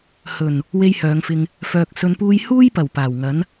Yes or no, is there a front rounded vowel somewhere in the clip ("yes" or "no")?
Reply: yes